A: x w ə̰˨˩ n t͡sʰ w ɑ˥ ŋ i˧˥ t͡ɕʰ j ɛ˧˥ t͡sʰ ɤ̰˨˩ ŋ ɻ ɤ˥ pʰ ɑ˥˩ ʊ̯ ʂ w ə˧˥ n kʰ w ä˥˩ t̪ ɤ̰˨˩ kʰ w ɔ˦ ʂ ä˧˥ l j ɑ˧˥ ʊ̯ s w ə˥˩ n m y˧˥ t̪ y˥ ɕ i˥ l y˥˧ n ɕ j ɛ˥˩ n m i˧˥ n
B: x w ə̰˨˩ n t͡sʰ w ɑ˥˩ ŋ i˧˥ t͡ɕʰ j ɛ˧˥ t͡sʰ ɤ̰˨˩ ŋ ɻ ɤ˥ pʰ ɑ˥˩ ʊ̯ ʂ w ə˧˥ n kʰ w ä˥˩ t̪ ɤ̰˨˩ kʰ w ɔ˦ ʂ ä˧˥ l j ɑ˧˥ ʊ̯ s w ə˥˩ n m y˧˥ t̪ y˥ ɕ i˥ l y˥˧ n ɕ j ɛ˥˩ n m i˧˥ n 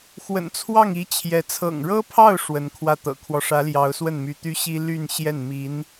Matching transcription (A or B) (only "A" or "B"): B